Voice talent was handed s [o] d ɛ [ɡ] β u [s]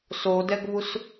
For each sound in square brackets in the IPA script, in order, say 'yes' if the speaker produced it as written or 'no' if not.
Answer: yes, yes, yes

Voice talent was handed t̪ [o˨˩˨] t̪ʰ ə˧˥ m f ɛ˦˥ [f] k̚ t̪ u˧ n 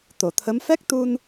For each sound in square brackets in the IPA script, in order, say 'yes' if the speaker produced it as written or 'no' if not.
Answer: yes, no

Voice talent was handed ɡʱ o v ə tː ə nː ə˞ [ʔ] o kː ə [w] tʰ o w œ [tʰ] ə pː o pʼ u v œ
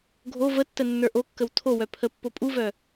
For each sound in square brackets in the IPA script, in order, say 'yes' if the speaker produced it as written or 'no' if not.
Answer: yes, yes, no

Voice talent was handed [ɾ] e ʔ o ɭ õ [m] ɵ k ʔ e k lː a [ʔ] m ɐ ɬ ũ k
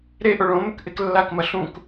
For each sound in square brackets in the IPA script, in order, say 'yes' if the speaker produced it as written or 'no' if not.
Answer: yes, yes, no

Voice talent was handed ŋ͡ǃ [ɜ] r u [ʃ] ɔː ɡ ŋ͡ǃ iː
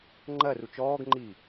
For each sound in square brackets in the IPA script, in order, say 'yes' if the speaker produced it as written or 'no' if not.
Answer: yes, no

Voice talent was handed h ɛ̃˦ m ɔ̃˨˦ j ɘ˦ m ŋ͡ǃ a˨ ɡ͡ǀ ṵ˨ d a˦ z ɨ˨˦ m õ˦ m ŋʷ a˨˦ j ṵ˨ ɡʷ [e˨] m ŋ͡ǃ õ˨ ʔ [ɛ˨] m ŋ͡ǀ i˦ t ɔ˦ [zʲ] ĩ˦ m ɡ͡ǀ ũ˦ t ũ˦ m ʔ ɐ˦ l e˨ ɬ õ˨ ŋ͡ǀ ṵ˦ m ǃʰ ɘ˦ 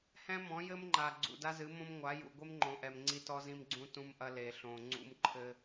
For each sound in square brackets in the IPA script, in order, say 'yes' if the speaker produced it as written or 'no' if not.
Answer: no, yes, no

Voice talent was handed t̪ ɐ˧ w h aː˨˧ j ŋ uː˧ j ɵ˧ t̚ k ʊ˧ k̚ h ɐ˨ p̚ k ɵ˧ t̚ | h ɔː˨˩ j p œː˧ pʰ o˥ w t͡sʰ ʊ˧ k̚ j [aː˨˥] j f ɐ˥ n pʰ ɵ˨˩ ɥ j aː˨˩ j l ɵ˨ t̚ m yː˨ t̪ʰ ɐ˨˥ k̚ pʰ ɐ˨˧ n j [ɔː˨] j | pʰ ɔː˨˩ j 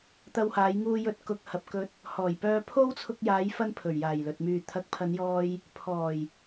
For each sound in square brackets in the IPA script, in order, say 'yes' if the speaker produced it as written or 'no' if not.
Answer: no, no

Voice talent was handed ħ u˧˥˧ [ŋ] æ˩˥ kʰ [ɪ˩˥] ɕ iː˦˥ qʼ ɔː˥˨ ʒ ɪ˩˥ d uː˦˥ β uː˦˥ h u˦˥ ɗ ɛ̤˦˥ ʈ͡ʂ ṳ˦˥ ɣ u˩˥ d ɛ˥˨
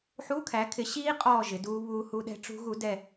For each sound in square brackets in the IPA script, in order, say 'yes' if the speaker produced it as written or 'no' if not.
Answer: no, yes

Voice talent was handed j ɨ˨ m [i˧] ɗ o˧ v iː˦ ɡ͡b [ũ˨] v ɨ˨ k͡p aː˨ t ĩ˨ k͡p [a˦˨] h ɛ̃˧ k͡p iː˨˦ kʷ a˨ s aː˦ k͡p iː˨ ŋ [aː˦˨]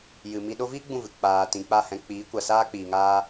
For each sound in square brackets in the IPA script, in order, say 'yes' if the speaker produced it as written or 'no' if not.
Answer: yes, no, yes, no

